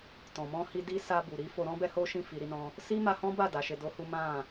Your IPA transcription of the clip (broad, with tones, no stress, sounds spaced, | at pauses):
t ɔ̃˨ m ɔ̃˧ h i˧ d i˦ s a˧ b u˨ ɾ i˨˦ f o˧ ɾ ɔ̃˦ b ɛ˦ h o˦ ʃ ĩ˦˨ f i˧ ɾ i˦ n ɔ̃˦ | s i˦ m a˧ h ɔ̃˦ b a˦˨ d a˨˦ ʃ e˧ d o˦ h u˦ m ã˦˨